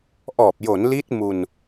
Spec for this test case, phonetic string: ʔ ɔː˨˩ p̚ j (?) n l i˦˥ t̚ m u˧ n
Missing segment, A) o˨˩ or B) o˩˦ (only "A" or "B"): B